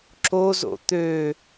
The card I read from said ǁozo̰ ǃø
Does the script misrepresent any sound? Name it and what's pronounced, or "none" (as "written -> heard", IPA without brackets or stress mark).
ǃ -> t̪